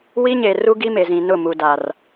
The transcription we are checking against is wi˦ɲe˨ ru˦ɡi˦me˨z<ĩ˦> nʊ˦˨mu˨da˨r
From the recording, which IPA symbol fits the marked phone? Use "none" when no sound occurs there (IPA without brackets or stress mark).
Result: ĩ˨